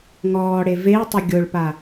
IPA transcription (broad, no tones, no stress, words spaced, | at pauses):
ŋɔːɽe vei̯tˤʊ ɡʲoɭpa